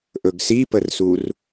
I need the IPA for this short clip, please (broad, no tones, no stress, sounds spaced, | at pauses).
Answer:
ʔ ɵ ɡ s i p ə r s u r